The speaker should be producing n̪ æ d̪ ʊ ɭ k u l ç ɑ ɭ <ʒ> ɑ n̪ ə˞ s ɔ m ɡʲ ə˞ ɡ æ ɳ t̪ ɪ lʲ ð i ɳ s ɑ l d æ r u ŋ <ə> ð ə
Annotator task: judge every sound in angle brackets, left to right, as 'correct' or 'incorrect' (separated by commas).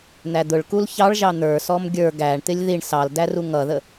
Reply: correct, incorrect